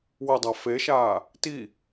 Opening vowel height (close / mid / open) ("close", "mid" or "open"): open